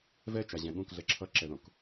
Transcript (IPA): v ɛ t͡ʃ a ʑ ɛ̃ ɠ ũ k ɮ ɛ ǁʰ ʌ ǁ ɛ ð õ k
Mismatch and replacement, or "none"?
none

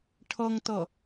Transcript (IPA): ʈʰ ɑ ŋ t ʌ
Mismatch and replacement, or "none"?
ɑ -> ʌ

